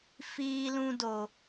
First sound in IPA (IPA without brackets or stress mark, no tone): f